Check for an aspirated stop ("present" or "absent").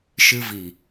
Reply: absent